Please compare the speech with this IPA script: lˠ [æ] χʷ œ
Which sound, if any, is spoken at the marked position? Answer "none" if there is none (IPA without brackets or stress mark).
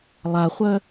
a